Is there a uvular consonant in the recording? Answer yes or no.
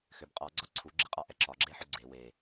yes